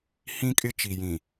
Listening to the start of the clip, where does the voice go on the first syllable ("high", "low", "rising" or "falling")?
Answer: high